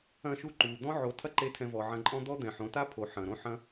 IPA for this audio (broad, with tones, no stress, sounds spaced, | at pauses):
ɐ̃˦˨ ʃ u˦ ǃ u˨ d̪ ɔ̃˦ ʕ o˨˦ tʰ ɐ˦ ǃ e˦ tʰ ɛ̃˧ v ɔ˨ ʕ ɐ̃˧ ǃʼ ɔ̃˦ d̪ ɔ˦ d̪ ɛ̃˨ ħ õ˨˦ t a˦ pʰ o˨ ħ ɐ̃˨ ɾ õ˦ ħ ɐ̃˦